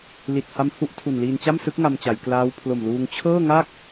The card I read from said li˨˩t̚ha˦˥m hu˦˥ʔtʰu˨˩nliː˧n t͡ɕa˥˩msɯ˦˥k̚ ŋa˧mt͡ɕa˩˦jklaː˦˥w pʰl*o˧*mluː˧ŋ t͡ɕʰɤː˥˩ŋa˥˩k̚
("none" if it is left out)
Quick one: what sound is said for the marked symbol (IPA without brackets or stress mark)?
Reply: o˨˩